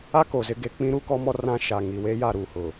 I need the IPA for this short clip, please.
a˦ k o˨ z ɪ˦ ɡ e˦ k͡p ĩ˦ ɾ u˦ k ɔ˦ m ɔ˦ r ã˦ ʃ a˨ ŋ i˨ w eː˦ j a˦˨ ɾ u˦˨ h ʊ˨

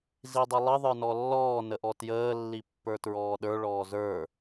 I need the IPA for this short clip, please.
z i dˤ ə lˠ ə ðˤ ə˞ n ɔ lː ɔː n ə ʔ ɔ t j əː lː i pː ə˞ t ɹ ɔː ɗ ə˞ ɭ ɔː z ə˞

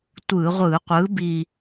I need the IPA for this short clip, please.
tʷ ɯ˧˩˧ ʁʷ ɯ˧˩˧ qʷ ɯ˨˥ b i˦˨

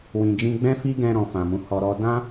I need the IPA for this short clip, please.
w ĩ˨ d͡ʒ ĩ˧ ɡ͡b ɛ̃˦ f i˦ ɡ ɛ̃˧ ɾ ɔ̃˨ f ã˨ m ũ˨˦ h ɔ˧ ɾ ɔ˦ d ã˦

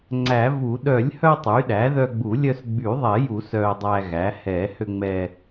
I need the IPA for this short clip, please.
ŋ͡ǀ æ˨˩˦ v u˨˩˦ ɗ œ˨˩˦ lʲ h œ˧ tˤ y˩˥ ɗ æ˩˥ ð œ˧ ɡ͡b u˨˩˦ lʲ œ˧ s ɡ͡b y˨˩˦ ðˤ ɛ˨˩˦ j u˨˩˦ s œ˧ dˤ æ˧ ɣ æ˩˥ h ɛ˨˩˦ h ø˧ ŋ͡m ɛ˧

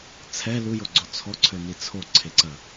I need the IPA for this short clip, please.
t͡sʰ ɛ l u j o ɡ͡ǀ o t͡sʰ ɔ ǀʰ ø n i t͡sʰ o ǀʰ e ǀ ɐ

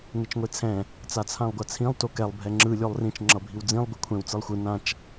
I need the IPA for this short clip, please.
ŋ e t͡ʃ ŋʷ e t͡sʰ ɛ̃ | t͡s a t͡sʰ ã lˠ ɡʷ a t͡sʰ ĩ lˠ t o k ɛ lˠ bʱ ɛ ŋ͡ǁ ɯ lʲ o lˠ r ĩ t͡ʃ ŋ͡ǁ ʌ bʱ i w d͡z ĩ lˠ ɡʷ ɛ kʷʰ ɛ̃ w t͡s ɯ lˠ xʷ ɯ n ã t͡ʃ

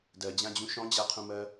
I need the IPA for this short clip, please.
d ɜ d͡ʑ ã d͡ʑ ũ ʃ ɔ̃ d͡ʑ a qʰ ũ m ɜ

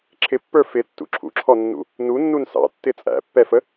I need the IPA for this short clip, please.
ǁʰ ɪ pː ə˞ f ɪ tː ṵ ǁʰ ṵ ǁʰ ɔ nː ṵ | n u nː u n s ɑ̰ tː ɪ t͡sʼ æ̰ pː ɛ f ə

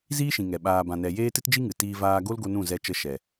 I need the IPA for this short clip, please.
z iː˦ ʃ ĩ˨ ŋ ɛ˨ ɓ aː˧ b ã˧ n ɛ˧ j eː˦ t ɨ˦ t d͡ʒ i˦ ŋ ɨ˨ t iː˧ v aː˧ ɡ o˦ l ɡ o˧ n ũ˦˨ z ɛ˧ t͡ʃ ə˧ ʃ ɛ˨

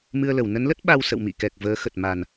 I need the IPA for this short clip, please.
m ɨ˧ ə̯ l ə˧˩ w n ə˨˦ n l ə˦˥ t̚ ɓ a˧ w s ə̰˧˨ w m ḭ˧˨ k ɛ˨˩ k̚ v əː˨˦ x ə˨˩ t̚ m a˨˩ n

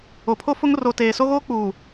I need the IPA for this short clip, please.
o˨ pʰ o˦ f ʊ˦ ŋ r o˨ t eː˨ s o˦ ɣ oː˦ k͡p uː˨

